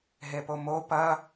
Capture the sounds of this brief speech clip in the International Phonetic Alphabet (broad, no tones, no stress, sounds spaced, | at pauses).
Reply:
ɦ e p o m o p ɐ